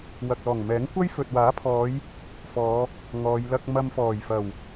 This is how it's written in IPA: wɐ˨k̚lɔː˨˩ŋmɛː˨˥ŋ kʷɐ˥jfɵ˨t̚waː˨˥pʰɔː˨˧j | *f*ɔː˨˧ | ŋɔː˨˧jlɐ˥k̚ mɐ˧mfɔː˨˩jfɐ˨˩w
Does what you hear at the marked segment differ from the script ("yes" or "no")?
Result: no